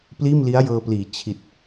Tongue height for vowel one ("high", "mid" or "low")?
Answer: high